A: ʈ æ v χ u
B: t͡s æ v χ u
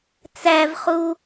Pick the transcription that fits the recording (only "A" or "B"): B